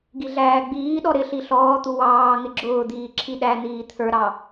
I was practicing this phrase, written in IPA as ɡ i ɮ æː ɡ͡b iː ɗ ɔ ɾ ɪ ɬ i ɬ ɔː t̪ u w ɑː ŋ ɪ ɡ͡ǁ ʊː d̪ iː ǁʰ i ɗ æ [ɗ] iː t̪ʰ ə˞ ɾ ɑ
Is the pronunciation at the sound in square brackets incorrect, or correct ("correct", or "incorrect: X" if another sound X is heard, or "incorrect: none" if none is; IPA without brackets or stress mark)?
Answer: incorrect: n̪